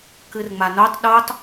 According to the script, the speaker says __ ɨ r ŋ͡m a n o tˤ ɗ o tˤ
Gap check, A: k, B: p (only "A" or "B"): A